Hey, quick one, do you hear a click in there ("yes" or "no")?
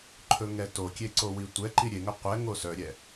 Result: yes